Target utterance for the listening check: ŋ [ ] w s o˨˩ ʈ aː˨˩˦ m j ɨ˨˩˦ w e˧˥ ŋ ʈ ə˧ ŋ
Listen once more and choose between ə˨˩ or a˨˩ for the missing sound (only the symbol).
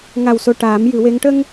a˨˩